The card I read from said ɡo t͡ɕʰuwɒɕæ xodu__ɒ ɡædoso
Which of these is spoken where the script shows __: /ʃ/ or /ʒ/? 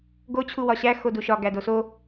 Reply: ʃ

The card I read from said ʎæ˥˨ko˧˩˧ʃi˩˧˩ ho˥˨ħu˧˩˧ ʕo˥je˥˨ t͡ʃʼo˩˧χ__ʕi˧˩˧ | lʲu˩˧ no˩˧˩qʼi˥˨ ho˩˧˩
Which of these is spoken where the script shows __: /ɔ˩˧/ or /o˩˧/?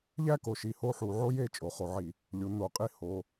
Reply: o˩˧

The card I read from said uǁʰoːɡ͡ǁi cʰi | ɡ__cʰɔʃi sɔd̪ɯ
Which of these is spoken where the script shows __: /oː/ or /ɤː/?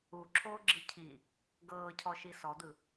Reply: ɤː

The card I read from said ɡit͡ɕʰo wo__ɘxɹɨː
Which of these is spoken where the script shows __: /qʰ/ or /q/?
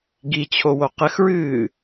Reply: q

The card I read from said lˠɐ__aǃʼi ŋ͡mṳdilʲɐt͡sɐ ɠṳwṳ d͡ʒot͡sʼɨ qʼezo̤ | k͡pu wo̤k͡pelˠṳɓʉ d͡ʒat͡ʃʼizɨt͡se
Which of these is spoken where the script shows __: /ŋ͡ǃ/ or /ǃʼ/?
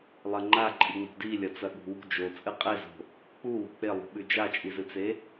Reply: ŋ͡ǃ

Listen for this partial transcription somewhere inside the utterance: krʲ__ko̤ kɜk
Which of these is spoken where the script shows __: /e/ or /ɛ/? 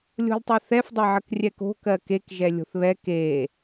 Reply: ɛ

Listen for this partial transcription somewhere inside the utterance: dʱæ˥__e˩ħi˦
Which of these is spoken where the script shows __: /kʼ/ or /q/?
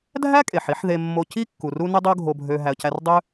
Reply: kʼ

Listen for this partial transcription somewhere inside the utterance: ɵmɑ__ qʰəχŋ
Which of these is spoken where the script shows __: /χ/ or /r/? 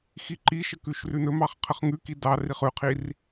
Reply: χ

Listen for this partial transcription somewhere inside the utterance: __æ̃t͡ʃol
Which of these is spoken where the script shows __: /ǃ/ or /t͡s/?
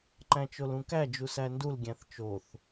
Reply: ǃ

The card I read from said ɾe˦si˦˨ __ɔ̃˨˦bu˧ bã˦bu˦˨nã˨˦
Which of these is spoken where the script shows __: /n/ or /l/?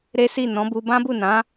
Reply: n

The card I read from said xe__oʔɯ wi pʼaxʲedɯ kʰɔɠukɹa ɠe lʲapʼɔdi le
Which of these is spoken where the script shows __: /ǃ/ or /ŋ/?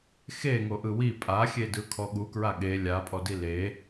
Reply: ŋ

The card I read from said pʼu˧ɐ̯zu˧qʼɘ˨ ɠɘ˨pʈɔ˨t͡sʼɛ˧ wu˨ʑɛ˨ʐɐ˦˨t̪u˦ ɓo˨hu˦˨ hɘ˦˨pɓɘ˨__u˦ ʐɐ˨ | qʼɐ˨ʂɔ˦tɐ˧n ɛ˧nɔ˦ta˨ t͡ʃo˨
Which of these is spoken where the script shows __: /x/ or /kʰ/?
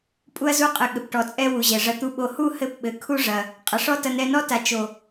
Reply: kʰ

